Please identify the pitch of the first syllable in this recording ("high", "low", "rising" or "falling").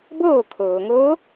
falling